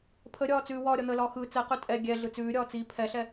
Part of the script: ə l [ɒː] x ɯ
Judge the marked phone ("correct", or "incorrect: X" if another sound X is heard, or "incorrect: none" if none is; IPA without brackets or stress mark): correct